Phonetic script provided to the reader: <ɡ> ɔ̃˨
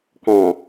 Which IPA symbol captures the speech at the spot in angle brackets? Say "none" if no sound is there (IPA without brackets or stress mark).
k